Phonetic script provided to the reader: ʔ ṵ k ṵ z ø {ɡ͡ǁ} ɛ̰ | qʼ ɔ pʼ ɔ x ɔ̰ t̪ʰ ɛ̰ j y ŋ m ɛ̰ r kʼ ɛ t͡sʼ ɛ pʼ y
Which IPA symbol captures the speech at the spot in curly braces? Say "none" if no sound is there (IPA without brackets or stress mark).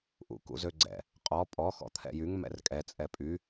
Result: ɡ͡ǀ